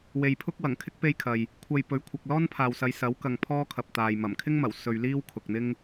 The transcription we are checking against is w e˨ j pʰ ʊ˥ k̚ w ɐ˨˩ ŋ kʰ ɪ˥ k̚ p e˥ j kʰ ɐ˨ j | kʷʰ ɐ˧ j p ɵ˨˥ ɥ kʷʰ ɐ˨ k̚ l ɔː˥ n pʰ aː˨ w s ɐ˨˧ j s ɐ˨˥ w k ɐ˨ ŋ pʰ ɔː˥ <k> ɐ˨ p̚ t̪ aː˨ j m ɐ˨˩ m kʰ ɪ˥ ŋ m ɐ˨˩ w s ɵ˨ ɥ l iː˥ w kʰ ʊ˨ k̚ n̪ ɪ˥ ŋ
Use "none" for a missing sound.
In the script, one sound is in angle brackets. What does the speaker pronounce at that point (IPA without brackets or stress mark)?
kʰ